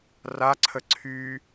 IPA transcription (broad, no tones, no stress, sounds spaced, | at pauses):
r a ǀʰ ə ǀʰ y